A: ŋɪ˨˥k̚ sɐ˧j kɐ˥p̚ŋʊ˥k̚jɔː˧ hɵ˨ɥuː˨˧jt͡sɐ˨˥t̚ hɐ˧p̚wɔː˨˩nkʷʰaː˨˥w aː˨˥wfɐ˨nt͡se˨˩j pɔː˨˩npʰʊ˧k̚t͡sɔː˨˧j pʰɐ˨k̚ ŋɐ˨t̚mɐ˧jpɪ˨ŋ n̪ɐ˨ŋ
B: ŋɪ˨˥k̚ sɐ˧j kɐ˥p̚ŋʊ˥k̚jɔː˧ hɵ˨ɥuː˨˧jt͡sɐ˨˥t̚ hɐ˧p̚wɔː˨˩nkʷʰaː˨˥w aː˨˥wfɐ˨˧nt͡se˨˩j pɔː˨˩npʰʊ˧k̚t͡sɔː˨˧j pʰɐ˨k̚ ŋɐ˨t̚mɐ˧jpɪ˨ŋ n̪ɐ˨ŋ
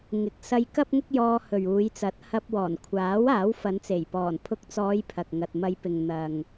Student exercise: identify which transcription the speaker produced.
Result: B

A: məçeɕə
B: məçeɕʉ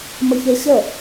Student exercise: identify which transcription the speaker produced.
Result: A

